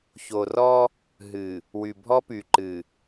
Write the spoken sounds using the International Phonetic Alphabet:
ço˨rɔ˦ | ɦɨ˨ | wy˨bʱɔ˦ py˨ǃɨ˨

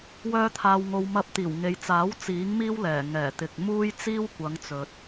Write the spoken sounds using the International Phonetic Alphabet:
wœː˧t̪ʰaː˨wŋo˨w mɐ˧p̚t̪iː˨˩wŋe˨jt͡saː˨˥w t͡siː˨˥ŋmiː˥wlɛː˨˩ ŋɛː˨˩t̪ɪ˨k̚ muː˥j t͡siː˥wkʷɐ˨˧ŋ t͡sɵ˨t̚

